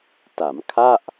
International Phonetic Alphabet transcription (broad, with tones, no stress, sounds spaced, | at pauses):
t a˩˦ m kʰ a˥˩ ʔ